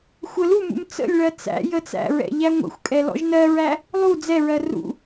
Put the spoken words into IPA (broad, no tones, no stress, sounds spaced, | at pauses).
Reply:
xʷ ə l u m ṵ m t͡s ə̰ lʲ ɭ ɜ t͡s æ̰ j ə t͡s æ̰ ɹ ɛ̰ ʎ æ ŋʷ ə̰ xʷ kʼ ɛ l ɔ̰ ʒ n ɜ ɹ æ | lˠ u d͡z ɛ ɹ ɜ r ṵ